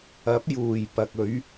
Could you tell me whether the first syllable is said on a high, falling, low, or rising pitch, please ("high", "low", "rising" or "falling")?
rising